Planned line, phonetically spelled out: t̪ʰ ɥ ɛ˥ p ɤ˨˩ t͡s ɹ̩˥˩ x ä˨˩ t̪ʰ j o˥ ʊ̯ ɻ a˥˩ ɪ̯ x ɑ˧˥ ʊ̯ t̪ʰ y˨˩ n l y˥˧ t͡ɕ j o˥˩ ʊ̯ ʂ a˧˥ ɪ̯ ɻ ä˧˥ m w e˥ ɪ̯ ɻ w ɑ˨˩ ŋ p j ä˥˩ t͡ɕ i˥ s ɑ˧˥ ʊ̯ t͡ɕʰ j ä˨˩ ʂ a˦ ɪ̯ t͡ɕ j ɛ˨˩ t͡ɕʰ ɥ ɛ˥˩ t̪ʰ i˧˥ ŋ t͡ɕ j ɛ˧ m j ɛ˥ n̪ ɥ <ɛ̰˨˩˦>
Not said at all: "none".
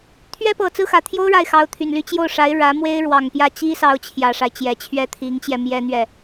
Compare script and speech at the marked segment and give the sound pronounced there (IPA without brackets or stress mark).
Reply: ɛ˥˩